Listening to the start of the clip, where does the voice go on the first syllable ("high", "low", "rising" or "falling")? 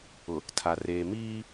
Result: low